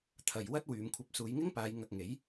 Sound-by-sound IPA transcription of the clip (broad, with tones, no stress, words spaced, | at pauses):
t̪ʰɐ˨j wɐ˥t̚ wyː˨˧m kʷʰɐ˨˥p̚suː˨˧jŋɪ˥ŋpaː˨˧j ŋɐ˧k̚ŋe˨˥j